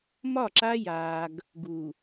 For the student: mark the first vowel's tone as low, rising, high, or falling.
falling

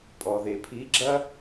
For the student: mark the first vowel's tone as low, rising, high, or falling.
low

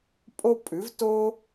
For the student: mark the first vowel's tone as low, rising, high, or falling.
high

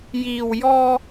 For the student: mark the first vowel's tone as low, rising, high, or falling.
low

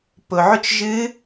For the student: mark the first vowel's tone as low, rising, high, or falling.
low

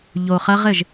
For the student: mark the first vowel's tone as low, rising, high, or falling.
low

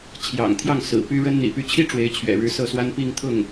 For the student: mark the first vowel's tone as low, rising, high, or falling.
low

